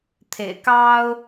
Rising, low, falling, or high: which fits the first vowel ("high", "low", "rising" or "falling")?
low